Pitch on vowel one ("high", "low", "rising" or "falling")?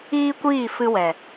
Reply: high